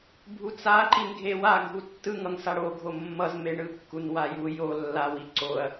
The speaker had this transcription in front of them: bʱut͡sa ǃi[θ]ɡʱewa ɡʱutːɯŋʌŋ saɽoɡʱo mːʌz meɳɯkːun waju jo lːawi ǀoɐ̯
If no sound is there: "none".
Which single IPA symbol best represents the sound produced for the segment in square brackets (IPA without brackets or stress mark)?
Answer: n